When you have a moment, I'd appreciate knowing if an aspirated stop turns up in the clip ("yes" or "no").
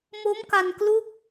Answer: no